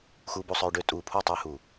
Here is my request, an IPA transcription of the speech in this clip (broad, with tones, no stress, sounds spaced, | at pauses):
x u˧ b u˧ sˤ œ˧ y̯ ɖ ø˧ tʼ uː˨ pʰ u˦˨ tˤ yː˧ h uː˨